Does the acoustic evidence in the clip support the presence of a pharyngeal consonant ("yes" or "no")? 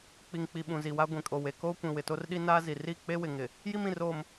no